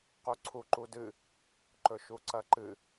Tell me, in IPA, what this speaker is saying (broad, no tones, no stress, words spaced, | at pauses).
quǀʰuǃudɨ | ǃɵʃuǀɐǃɨ